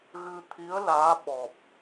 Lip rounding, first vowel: unrounded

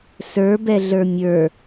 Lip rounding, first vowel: unrounded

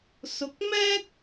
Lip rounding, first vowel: rounded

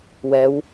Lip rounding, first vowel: unrounded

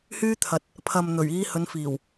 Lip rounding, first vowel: rounded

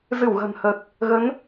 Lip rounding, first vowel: unrounded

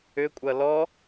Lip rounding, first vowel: rounded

